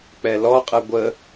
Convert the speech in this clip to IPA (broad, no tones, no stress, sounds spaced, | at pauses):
k͡p ɛ l ɔ qʼ ɨ ɡʷ ə